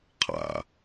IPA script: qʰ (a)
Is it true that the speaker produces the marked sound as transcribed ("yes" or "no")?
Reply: no